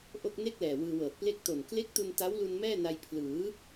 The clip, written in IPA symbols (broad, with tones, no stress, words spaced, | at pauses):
ʔo˥˩k̚ ne˥˩k̚lɛː˨˩ wɯː˧wɤː˨˩t̚ ple˦˥k̚to˨˩n kle˦˥k̚tu˧n ta˦˥wlu˧n mɛː˥˩na˧j pʰlɯː˩˦